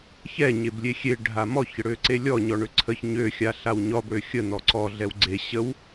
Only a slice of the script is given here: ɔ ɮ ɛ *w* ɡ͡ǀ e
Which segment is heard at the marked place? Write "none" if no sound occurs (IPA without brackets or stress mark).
w